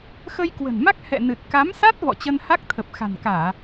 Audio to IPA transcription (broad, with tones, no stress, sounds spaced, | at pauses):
x ə˧ j k w ə̤˨˩ n m a˦˥ k̚ h ɛ̰˧˨ n ɨ˨˩ t̚ k a˨˦ m s a˦˥ t̚ v ɔ̰˧˨ t͡ɕ ə˧ n h a˦˥ k̚ t̪ʰ ə˨˩ p̚ x a̤˨˩ n k aː˧˩˨